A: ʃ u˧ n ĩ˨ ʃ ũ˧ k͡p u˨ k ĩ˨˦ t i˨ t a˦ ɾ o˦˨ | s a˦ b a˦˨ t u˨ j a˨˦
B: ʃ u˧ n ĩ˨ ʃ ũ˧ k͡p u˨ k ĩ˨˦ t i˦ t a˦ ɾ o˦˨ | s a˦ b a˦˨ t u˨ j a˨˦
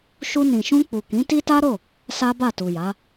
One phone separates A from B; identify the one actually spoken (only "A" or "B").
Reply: B